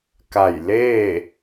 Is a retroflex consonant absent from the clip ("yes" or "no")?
yes